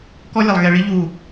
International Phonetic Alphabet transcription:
kɔ˦lʲa˨lˠ ɣɛ˨ɭi˦ ʎu˦˨

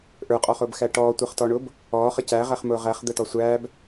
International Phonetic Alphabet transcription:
ʔə˞qʼɔχʊːbxæ ʈɔːtʷəːχtɔɳʊːb | ɔːχə cæʁæχmʊː ʁæχ d̪ətɔsʷæːb

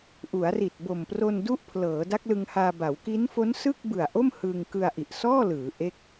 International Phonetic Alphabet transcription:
ʔu˩˦a̯ri˨˩t̚bo˨˩m pro˧ndu˦˥ʔpʰlɤː˩˦ da˦˥k̚lɯ˧ŋhaː˧ba˩˦w ki˦˥nfo˦˥nsɯ˥˩k̚ bɯ˨˩a̯ʔo˥˩mhɯ˧ŋ kɯ˧a̯ʔi˨˩ʔsɔː˥˩lɯː˩˦ ʔe˥˩k̚

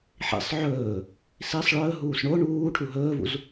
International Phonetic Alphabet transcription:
ħḭsˤ ʕɵː | sisˤ ɭɵːɦuːs ɳo ɳuː ʈʰuɦɵːvṵz

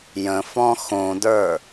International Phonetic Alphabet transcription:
jə̃fɔ̃ xõdə˞

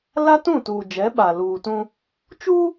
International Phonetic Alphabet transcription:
la˦tũ˦˨ tuː˨d͡ʒɛ˨˦ɓa˨ luː˨tũ˦ | t͡ʃuː˦

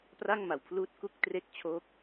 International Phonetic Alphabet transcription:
pra˥˩ŋma˨˩wpʰluː˦˥t̚ ku˥˩k̚tre˥˩k̚t͡ɕʰoː˦˥k̚

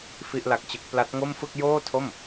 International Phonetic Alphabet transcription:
fi˥˩ʔla˦˥k̚t͡ɕɯ˦˥k̚ pla˦˥t̚ŋo˥˩mfɯ˥˩k̚ joː˥˩tʰo˥˩m

